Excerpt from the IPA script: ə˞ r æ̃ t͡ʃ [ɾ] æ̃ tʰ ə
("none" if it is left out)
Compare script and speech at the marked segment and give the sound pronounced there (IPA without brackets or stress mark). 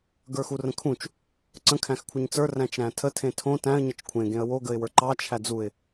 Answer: ɾ